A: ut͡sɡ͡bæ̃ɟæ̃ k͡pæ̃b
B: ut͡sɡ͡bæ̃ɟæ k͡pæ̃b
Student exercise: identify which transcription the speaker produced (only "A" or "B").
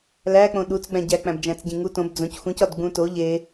B